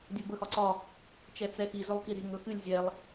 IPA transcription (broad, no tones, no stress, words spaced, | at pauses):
dʲɵbə xɒǀɒ | t͡ʃɛt͡sɛxi zɵlˠkiɾe̤ ŋɵxɨlʲ zʲɛlˠ